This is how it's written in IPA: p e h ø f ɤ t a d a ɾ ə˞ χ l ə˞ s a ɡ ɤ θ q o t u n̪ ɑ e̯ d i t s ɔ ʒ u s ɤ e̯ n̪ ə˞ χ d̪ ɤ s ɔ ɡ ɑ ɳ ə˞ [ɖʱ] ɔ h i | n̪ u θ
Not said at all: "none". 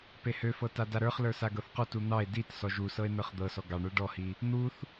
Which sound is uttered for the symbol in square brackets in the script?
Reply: ɖ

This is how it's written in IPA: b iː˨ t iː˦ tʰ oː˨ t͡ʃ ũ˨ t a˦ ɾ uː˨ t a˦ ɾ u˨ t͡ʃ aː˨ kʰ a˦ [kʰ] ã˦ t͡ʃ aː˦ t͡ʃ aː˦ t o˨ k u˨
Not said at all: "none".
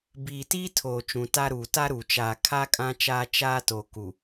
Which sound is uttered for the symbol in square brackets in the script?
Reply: kʼ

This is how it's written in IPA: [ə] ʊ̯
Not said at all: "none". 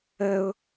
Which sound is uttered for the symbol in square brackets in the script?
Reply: ə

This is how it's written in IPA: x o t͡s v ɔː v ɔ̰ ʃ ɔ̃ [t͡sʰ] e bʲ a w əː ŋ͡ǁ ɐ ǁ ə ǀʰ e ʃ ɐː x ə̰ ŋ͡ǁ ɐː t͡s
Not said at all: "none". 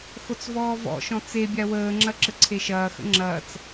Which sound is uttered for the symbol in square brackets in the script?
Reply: t͡s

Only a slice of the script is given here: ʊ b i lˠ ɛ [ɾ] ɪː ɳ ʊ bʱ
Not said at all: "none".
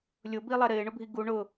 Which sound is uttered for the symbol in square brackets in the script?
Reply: ɾ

